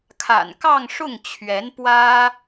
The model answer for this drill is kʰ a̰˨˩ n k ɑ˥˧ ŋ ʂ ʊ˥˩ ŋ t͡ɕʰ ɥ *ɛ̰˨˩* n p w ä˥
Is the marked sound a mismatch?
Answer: yes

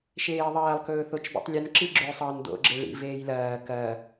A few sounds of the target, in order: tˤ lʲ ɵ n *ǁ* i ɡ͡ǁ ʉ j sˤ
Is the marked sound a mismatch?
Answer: no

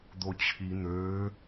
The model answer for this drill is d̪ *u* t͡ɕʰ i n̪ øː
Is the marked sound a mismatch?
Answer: yes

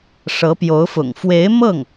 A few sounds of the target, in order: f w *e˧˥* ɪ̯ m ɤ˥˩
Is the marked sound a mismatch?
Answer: no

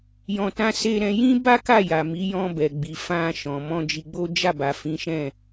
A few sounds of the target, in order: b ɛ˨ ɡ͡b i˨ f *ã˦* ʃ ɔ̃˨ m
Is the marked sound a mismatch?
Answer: yes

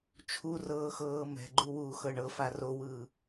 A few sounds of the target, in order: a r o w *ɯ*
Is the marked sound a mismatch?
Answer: no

